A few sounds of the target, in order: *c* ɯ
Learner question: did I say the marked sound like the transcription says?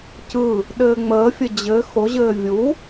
yes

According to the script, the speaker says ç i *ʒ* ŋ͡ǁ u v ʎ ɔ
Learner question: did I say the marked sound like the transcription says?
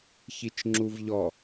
no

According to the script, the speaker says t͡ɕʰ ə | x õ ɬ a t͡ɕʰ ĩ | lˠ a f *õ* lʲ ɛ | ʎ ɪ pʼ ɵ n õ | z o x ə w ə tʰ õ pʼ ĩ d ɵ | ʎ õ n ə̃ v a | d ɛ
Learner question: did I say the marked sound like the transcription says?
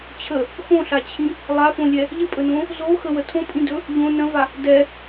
yes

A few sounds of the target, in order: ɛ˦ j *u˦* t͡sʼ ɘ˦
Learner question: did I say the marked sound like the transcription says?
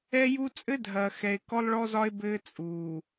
yes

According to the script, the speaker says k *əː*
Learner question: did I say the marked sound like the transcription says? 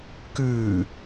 no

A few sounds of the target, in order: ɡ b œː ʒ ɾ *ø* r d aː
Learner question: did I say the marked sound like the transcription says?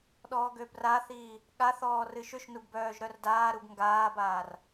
no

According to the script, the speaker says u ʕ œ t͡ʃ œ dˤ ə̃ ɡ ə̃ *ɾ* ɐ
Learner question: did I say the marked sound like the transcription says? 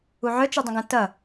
no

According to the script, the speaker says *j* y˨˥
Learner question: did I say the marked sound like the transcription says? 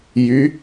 yes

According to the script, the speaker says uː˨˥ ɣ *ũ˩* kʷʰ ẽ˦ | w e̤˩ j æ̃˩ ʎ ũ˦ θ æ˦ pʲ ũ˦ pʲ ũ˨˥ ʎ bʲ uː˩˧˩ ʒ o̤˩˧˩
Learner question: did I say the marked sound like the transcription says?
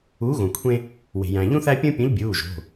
no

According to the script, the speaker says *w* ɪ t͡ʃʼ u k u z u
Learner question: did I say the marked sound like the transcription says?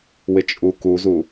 yes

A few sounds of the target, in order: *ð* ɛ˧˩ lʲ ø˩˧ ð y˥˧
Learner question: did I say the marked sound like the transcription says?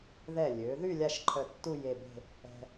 yes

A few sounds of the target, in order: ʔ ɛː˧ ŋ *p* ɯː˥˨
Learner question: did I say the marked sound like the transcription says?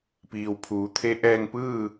yes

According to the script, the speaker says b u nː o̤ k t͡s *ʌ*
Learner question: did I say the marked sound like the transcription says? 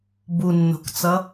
yes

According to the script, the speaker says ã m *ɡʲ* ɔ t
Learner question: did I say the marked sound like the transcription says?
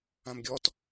yes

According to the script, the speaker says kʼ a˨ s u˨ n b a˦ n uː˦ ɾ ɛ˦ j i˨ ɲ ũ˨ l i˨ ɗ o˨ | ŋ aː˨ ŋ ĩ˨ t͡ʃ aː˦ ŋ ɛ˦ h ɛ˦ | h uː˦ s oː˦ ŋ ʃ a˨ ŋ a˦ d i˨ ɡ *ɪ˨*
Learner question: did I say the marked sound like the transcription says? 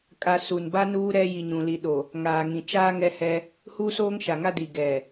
no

